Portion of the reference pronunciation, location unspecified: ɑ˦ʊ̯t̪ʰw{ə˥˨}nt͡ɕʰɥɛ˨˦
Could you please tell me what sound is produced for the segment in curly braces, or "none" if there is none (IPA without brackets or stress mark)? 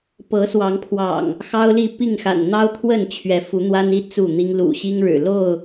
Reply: ə˥˨